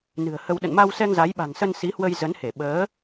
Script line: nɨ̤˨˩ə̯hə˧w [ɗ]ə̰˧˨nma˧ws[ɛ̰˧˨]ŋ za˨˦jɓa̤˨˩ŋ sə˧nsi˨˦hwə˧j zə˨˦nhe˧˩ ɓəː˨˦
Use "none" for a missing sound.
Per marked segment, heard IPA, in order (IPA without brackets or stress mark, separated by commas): ɗ, ɛ˧